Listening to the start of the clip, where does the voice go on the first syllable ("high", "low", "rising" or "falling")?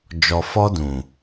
low